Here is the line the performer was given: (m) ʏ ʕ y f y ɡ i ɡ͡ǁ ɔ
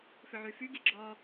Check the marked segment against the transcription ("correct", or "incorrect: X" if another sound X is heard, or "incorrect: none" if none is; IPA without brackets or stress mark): incorrect: f